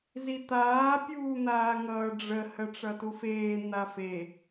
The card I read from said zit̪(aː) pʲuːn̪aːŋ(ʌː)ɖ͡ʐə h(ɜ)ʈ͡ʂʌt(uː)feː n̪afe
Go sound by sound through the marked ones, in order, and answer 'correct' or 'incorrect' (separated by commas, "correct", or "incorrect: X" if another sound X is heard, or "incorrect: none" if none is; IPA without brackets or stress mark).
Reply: correct, correct, correct, incorrect: u